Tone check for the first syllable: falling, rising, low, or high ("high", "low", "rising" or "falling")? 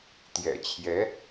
low